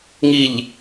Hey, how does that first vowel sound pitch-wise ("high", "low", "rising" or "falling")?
low